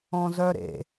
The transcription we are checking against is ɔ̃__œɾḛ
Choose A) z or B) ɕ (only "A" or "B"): A